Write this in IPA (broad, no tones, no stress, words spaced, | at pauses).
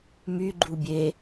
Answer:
myɡ͡ǃu bʲe